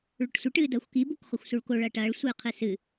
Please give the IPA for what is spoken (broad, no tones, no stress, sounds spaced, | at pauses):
ɭ ɵ ʈ sʷ ɨ ʈ ɨː d ɐː xʷ k i b u k χ ɵ xʷ s u ɭ k o ɭ ɐː ʈ ɐː ɭ sʷ ɨː qʰ ɨ s ɨ